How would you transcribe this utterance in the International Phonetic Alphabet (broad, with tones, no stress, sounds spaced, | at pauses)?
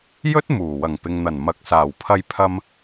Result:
j ɵ˥ t̚ m uː˨˩ w ɐ˨˩ ŋ p ɪ˨ ŋ n̪ ɐ˨˩ n m ɐ˨ k̚ s aː˨˩ w pʰ ɐ˧ j pʰ ɐ˧ m